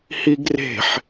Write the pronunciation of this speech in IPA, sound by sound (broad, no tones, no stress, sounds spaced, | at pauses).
h i ɡ r e̤ ħ